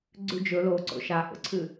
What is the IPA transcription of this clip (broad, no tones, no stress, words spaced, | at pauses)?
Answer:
ɡ͡ǀʉd͡ʒɵ lo ǀo̰ʃa ʔo̰ǀʰɨ